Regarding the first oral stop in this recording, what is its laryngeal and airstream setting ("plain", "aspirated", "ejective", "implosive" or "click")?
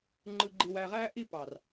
click